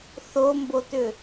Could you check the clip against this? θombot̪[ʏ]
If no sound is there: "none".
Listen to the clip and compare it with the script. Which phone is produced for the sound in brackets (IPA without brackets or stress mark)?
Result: ʏ